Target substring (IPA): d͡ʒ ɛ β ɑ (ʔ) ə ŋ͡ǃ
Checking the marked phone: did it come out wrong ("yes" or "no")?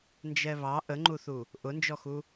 no